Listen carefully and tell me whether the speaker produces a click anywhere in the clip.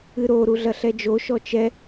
no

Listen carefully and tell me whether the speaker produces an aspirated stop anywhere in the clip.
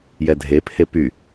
yes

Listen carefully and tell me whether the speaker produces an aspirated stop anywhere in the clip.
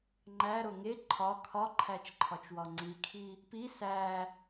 yes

